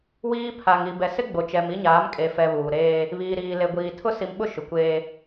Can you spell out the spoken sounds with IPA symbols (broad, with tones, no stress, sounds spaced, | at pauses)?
w iː˦ pʰ a˨ ŋ i˨ b ɛ˨ s ɪ˦ ɡ͡b o˨ t͡ʃ ɛ˨ m i˦ ɲ aː˨˦ m kʼ e˨ f ɛ˨ β uː˨ ɾ eː˦ | β iː˨ ɾ iː˨ l e˨ ɡʷ iː˨ tʰ ʊ˦ s i˨ m ɓ ʊ˦ ʃ ʊ˨ kʷ eː˦